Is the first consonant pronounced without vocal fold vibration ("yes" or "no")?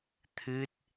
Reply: yes